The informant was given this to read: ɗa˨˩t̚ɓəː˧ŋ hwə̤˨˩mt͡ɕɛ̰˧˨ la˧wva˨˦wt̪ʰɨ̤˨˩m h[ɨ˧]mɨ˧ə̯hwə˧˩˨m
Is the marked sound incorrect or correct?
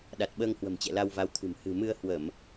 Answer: incorrect